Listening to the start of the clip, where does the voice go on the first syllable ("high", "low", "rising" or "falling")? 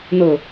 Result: low